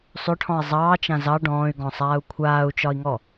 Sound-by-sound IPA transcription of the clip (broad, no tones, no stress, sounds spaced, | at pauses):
sˤ ʏ ʈʰ ɔ̃ i̯ zˤ ɑː t͡ʃ ã z ɑ ɖ ɔ̃ː y̯ ɡ ɔ̃ sˤ aː u̯ kʷʰ aː u̯ t͡ʃ ɒ i̯ ŋ ɔ